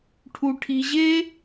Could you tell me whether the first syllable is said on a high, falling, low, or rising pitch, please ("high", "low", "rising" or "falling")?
high